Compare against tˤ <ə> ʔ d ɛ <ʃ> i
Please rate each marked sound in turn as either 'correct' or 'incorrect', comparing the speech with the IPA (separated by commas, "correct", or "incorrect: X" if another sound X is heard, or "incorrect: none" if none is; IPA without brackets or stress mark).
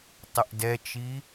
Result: correct, incorrect: t͡ʃ